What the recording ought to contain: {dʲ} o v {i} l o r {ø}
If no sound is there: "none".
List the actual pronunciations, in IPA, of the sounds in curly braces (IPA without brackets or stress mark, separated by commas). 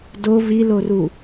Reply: d, i, u